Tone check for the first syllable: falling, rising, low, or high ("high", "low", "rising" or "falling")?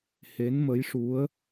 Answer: rising